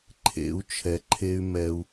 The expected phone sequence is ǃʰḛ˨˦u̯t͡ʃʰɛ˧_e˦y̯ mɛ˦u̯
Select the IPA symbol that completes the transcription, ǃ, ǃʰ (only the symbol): ǃʰ